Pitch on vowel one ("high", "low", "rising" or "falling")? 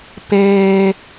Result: high